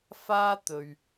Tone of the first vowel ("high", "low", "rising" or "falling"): high